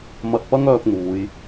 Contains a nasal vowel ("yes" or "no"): no